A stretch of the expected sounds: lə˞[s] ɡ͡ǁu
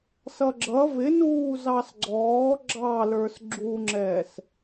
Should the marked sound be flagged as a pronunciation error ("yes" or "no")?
no